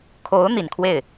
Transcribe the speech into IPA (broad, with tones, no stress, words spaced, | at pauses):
kʰo˧˥ʊ̯ n̪i˨˩nkʰwe˥˩ɪ̯